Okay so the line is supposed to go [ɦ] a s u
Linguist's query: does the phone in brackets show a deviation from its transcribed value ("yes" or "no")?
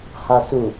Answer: yes